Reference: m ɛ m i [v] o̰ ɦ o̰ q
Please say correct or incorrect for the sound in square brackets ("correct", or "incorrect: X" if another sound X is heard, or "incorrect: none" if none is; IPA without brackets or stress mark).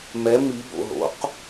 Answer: incorrect: b